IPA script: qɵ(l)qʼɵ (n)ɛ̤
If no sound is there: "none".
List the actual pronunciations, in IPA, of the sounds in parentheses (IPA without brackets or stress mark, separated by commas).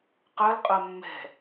l, mː